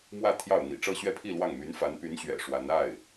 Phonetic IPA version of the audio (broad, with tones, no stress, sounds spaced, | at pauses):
m w ä˥˧ t̪ʰ j ɑ˥˩ ʊ̯ n̪ ḭ˨˩ ʈ͡ʂ ɤ˥˧ ɕ ɥ ɛ˥˧ pʰ i˥˧ l w ɑ˥˩ ŋ m y˧˥ n f a˧˥ n p y˧˥ n ɕ ɥ ɛ̰˨˩ ʂ w a˧˥ n a˥˩ ɪ̯